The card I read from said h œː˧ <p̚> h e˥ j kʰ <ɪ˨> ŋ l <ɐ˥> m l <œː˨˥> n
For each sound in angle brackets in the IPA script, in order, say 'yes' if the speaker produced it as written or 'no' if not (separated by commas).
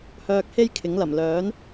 no, no, no, yes